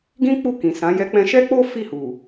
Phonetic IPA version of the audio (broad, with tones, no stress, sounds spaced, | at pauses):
ɡ ĩ˦ k͡p u˦˨ k ĩ˨ s ã˨˦ j ɛ˧ k͡p ɛ̃˧ ʃ ɛ˦ k͡p o˦ f i˦˨ h u˨